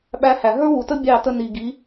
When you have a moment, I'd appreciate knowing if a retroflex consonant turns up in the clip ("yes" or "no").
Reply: no